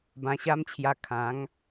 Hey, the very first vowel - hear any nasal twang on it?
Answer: yes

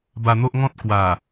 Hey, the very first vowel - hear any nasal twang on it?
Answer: no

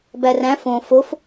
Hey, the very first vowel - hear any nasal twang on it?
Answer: no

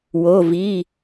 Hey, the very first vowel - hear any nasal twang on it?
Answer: no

